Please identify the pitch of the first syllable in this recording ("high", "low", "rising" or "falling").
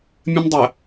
high